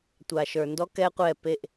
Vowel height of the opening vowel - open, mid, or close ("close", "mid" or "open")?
open